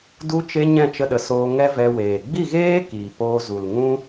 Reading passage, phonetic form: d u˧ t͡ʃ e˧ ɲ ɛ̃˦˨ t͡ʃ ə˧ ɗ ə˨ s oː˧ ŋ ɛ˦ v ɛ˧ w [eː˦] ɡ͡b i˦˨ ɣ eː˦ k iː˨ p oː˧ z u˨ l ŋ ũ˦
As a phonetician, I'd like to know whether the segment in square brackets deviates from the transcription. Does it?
yes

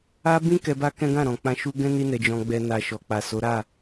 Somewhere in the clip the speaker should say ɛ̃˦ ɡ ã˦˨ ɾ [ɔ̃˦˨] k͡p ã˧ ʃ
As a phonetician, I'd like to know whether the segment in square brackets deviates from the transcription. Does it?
yes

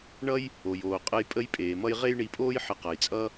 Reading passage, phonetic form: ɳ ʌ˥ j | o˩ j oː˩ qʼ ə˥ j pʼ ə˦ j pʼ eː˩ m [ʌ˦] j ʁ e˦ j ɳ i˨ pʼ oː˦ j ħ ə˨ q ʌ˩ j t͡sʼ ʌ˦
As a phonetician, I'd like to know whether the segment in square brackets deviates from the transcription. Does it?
no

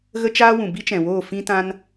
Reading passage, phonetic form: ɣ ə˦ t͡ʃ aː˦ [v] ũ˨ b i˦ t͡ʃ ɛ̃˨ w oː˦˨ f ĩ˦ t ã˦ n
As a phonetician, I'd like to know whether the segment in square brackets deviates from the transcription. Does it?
yes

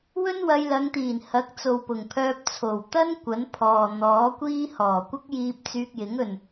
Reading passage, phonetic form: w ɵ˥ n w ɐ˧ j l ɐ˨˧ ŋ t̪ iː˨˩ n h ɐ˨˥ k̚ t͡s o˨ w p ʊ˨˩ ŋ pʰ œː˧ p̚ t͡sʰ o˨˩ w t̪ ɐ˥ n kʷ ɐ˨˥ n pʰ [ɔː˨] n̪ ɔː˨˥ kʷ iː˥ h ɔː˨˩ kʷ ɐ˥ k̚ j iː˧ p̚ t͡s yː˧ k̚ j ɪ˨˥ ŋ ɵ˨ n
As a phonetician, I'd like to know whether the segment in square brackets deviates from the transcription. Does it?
no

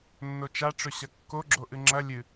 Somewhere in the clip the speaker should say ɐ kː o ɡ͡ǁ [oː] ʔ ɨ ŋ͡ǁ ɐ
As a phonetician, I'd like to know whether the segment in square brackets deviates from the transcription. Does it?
yes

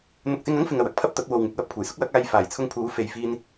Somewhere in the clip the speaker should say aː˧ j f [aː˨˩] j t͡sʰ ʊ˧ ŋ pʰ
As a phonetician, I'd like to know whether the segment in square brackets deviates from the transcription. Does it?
no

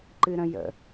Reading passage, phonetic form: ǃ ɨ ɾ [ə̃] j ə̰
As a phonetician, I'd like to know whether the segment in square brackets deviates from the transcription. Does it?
no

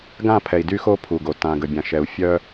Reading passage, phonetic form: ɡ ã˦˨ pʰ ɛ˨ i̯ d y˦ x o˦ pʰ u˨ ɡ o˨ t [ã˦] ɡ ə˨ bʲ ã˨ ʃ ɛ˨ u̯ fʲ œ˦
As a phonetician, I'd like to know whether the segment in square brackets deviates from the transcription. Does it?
yes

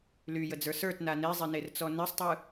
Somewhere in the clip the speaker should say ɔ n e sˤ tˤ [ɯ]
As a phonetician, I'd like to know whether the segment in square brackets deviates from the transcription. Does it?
no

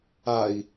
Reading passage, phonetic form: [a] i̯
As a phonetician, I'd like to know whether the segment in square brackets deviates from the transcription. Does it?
no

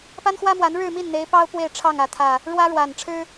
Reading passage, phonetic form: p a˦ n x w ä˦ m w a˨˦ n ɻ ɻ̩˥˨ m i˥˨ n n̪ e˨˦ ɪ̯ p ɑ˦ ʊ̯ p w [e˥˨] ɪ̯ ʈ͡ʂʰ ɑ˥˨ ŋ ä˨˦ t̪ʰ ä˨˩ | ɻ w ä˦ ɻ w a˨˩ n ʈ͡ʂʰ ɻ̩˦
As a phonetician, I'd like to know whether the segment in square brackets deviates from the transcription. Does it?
no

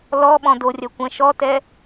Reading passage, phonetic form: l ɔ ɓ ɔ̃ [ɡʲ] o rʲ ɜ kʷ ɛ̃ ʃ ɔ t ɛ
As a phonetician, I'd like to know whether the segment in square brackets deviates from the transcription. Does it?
yes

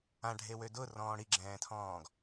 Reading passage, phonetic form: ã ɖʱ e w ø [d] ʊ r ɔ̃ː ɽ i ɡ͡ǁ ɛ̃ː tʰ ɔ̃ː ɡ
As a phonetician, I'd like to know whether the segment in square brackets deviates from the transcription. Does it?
no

